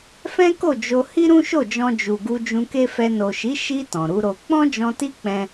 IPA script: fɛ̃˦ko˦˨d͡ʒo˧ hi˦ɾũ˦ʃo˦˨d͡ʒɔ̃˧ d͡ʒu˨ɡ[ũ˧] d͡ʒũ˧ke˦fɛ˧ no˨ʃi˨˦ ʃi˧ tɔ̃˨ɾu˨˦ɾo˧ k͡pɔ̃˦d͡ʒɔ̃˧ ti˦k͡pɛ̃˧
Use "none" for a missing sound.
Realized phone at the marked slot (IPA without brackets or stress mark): u˧